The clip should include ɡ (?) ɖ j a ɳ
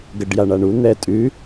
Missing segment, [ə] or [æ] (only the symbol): ə